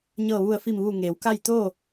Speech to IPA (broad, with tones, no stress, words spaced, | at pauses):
ɲɤː˧˩ʋu˧˩ə̯fi˧˩mʋuː˧˩ ŋeː˩˧wka˥˨j t̪oː˥˨